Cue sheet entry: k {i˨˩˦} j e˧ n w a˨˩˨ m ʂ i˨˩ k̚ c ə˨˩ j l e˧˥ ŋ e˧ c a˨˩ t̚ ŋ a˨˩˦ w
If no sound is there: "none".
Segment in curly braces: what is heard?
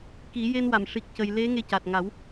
i˨˩˦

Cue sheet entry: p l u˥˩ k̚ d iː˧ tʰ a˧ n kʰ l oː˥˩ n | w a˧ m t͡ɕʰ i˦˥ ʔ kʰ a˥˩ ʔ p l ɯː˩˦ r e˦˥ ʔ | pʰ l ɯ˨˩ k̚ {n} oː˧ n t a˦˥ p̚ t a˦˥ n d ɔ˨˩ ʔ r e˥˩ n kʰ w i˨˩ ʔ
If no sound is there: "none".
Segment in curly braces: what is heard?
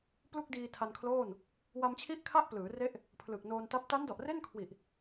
n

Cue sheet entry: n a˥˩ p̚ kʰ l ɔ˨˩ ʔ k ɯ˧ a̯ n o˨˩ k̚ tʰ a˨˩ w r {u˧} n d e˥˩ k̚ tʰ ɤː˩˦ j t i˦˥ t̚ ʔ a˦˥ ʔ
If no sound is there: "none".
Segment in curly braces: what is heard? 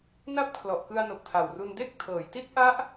u˧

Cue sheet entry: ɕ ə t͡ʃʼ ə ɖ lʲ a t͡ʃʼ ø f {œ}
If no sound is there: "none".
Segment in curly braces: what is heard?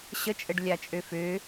ø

